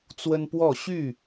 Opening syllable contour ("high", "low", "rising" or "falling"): high